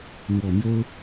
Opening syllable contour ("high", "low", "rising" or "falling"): low